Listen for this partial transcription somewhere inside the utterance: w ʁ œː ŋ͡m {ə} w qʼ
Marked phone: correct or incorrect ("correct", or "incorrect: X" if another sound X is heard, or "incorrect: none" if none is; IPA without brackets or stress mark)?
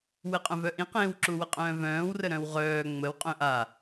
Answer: correct